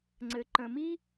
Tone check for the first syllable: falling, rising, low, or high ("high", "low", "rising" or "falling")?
low